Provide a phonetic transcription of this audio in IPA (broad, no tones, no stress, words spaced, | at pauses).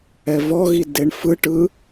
ɛvɔɣi deɳfɯʈɯ